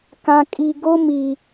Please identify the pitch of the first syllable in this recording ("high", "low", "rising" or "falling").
low